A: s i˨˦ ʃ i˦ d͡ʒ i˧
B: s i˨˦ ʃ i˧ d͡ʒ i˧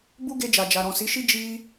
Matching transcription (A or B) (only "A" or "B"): A